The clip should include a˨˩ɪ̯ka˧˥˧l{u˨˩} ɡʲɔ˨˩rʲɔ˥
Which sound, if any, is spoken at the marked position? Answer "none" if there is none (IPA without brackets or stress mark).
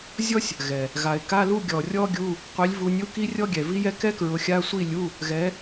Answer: u˥˧